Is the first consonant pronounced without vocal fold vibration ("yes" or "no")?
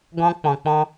no